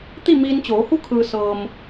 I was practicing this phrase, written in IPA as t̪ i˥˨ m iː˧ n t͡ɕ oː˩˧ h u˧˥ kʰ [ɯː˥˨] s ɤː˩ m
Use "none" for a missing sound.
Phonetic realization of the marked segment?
ɯː˩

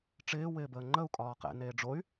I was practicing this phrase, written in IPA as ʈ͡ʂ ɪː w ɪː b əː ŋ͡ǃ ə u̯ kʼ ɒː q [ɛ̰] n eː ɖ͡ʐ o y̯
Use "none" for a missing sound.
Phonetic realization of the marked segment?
ɛ̰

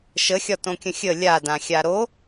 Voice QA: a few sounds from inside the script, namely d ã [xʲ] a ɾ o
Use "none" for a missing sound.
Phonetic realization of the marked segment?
xʲ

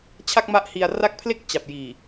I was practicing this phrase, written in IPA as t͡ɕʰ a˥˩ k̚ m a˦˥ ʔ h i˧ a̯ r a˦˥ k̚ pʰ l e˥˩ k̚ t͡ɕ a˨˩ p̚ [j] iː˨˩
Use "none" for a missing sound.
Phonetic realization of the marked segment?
j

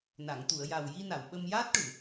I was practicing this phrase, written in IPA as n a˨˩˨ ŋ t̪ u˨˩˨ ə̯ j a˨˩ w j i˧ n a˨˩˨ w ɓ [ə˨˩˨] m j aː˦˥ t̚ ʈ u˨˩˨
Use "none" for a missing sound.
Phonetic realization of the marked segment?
ə˧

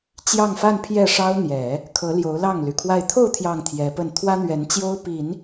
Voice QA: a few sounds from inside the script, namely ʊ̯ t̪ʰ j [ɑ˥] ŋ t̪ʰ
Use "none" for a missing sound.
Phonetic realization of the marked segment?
ɑ˥˩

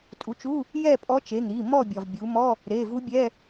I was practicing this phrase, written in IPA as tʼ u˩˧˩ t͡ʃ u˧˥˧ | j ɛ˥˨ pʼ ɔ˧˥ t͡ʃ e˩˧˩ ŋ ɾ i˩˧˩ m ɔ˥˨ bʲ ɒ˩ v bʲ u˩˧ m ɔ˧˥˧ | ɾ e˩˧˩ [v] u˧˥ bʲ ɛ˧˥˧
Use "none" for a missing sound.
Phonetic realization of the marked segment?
v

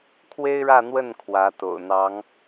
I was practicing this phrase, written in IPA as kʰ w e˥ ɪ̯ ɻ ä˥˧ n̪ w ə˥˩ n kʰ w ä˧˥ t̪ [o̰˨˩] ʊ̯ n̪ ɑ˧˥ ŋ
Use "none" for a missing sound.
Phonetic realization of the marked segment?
o̰˨˩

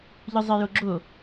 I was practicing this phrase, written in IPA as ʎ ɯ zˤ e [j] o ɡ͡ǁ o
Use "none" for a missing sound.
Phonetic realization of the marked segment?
j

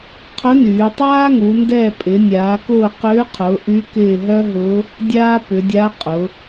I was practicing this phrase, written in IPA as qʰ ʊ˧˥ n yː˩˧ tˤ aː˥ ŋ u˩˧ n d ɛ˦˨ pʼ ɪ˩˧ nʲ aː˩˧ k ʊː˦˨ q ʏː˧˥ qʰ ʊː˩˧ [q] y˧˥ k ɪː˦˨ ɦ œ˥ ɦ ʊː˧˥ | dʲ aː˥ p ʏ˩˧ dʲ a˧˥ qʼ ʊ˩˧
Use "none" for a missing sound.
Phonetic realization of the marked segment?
ʔ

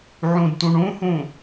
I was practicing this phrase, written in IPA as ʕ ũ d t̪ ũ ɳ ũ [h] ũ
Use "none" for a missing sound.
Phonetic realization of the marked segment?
h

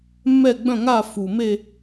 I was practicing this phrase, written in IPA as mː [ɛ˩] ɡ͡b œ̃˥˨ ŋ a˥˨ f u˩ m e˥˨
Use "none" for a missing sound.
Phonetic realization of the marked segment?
ɛ˥˨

